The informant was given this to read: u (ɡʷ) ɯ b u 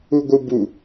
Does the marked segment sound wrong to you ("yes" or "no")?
no